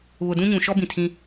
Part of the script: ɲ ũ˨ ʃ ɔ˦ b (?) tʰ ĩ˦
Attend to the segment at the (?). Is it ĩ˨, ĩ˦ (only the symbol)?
ĩ˨